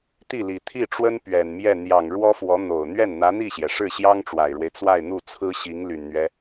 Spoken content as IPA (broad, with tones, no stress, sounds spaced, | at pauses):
t̪ i˥˩ l i˨˩ t̪ʰ i˥˩ ʈ͡ʂ w ə˥ n p ɥ ɛ˨˩ n m j ɛ˥˩ n̪ j ɑ˨˩ ŋ ɻ w ɔ˥ f w ɔ˧˥ n̪ o˨˩ ʊ̯ n̪ ɥ ɛ˥˩ n n̪ ä˧˥ n̪ i˥˩ ɕ j ɛ˩ ʂ ɻ̩˥˩ ɕ j ɑ˥ ŋ ʈ͡ʂ w a˨˩ ɪ̯ ɻ w e˦ ɪ̯ t͡s w a˥˧ ɪ̯ n̪ u˥˩ t͡sʰ ɹ̩˥ ɕ i˧˥ ŋ l y˨˩ n n̪ ɥ ɛ˦